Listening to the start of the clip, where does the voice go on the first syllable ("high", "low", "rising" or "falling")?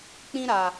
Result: high